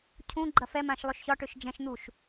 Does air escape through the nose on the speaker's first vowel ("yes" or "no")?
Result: yes